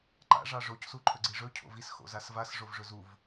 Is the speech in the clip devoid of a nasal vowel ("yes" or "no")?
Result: yes